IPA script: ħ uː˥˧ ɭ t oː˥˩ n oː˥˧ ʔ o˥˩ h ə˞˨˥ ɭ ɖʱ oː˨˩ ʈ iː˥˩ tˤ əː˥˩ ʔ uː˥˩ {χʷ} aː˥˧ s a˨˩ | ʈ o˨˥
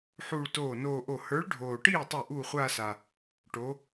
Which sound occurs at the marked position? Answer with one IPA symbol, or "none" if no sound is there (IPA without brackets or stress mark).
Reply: χʷ